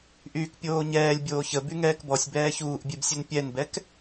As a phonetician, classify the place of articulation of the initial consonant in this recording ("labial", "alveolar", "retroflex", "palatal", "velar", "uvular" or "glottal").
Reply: glottal